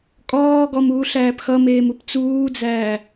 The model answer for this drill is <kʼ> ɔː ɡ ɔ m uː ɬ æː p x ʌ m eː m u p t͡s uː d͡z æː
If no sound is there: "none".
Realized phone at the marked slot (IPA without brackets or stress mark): kʼ